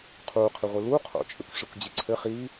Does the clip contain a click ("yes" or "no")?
yes